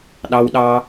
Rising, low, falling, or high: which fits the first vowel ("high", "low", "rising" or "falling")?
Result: low